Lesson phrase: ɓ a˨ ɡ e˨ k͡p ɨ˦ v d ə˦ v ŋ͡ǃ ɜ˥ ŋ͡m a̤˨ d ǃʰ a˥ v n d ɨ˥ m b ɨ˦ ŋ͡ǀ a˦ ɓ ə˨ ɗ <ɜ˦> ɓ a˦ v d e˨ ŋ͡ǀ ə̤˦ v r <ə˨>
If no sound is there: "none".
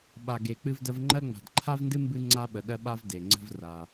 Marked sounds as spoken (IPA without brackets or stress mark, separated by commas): ɜ˦, a˨